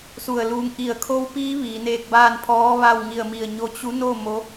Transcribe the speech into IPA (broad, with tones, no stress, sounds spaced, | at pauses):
s u˧˩ ə̯ l uː˧ ŋ ʔ i˧˩ ə̯ kʰ o˧˥ w p iː˧˥ ʋ iː˩˧ n eː˧ k̚ b aː˥˨ n pʰ ɔː˧˥ ʋ a˥˨ w ŋ i˧˩ ə̯ m i˧˩ ə̯ ɲ o˧ t͡ɕ u˧˥ n o˥˨ m o˧˥